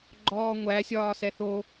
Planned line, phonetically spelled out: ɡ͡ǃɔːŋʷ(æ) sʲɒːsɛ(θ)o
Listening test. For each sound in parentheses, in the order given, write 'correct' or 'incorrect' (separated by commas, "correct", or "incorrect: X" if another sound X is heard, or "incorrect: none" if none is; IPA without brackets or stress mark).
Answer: correct, correct